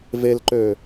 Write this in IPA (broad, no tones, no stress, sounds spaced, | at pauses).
v e l ǃ ø